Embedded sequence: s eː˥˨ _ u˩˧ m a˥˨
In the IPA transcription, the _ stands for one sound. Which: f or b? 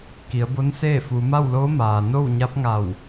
f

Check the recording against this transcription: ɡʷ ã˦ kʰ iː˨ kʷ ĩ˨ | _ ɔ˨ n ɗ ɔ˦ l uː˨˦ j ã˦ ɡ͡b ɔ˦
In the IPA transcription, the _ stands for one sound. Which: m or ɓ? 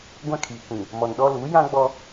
m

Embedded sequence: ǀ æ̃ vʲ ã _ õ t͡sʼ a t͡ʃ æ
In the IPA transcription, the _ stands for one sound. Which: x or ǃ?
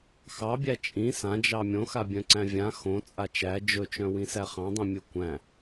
x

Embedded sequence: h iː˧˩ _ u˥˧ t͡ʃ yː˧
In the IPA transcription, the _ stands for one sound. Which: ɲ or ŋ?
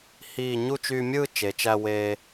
ɲ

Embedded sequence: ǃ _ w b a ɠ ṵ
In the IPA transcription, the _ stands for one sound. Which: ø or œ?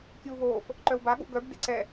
œ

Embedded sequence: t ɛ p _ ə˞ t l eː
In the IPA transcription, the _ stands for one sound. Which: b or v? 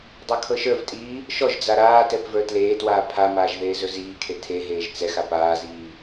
v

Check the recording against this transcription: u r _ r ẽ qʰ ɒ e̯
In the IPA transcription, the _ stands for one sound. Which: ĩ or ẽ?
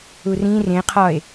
ĩ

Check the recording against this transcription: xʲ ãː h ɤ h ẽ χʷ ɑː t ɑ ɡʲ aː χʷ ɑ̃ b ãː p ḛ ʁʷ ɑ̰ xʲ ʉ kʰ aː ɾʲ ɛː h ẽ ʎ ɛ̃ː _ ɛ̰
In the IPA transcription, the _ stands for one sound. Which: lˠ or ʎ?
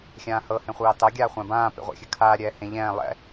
lˠ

